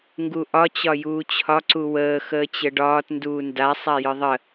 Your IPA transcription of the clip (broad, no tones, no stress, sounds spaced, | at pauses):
ŋ ɡ u ʔ ɒ t͡ɕ ɒ j uː t͡ɕʰ ɒ ǀ u w əː x əː t͡ɕ ə ɖ ɒː t n d uː n d a sˤ a j ɯ ðˤ ə